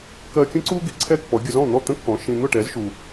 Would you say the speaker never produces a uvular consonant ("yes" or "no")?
yes